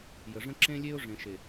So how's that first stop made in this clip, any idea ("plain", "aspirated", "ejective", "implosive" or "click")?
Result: click